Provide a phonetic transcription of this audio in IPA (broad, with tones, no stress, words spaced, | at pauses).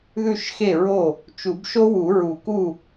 ðʉ˥˩ʃxe˥˩ɹo˥˩ | t͡ʃu˨˩˦bʃo˥wu˨˩˦ ɹu˨˩˦ku˥˩